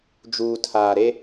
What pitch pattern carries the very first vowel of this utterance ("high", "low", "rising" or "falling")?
low